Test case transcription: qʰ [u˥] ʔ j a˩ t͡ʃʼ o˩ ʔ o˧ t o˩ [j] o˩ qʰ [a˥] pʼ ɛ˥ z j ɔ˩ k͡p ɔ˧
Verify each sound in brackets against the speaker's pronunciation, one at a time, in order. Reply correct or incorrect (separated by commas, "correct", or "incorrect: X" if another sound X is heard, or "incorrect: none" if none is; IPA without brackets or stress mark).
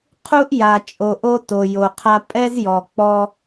correct, correct, incorrect: a˧